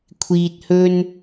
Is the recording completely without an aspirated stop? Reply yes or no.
no